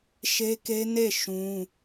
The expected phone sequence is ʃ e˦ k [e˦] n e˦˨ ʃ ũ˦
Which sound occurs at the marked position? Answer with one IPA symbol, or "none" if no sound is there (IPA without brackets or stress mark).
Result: e˦